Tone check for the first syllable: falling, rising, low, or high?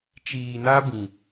low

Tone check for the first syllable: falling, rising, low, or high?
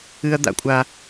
high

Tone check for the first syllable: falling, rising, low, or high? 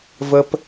high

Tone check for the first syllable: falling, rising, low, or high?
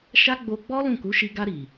high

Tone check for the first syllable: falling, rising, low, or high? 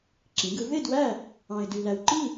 rising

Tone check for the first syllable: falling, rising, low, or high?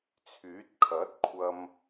rising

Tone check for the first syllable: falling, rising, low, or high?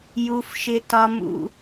high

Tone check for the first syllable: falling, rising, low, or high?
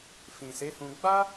low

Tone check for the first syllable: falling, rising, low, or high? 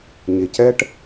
low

